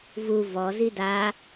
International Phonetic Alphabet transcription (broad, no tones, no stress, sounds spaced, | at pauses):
v u v ɔ z i d a